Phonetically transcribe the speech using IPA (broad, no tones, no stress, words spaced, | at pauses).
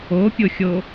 opʲoxʲo